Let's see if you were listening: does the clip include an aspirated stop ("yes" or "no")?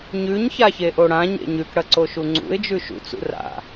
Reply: no